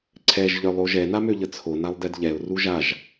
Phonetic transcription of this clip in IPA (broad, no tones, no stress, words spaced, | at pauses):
ǀʰɛʒ ʎœlˠoʒɛ namøʎət͡sʰo nalˠdɛdʎɛʊ̯ ruʒaʒ